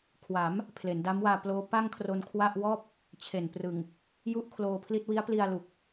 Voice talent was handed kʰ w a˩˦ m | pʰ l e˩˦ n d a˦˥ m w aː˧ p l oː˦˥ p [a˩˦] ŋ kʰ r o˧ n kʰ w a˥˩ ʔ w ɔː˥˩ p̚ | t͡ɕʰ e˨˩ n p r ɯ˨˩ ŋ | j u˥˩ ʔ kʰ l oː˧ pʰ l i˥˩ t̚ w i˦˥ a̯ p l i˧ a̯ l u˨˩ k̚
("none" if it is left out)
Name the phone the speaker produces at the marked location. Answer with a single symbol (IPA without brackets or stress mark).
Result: a˥˩